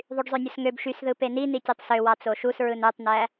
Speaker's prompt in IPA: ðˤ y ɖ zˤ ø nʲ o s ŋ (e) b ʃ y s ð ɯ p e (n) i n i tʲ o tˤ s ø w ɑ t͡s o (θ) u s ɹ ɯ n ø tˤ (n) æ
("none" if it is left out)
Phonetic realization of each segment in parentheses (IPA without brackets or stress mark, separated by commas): ø, n, ʃ, n